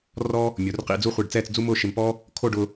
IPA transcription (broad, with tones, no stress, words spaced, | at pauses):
rɔ˥ | mʲo˩˧rqḭ˧d͡zu˥˧χʷi˧˩ɖ t͡sɛː˥˧t͡sd͡zu˥mʊː˥˧ ʃɪ˧mpɔ˥ | kʰo˥˧ɖʊ˧